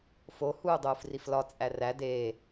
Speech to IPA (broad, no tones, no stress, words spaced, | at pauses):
fo huːdˤuːfriflɒ t͡sʼæræ deː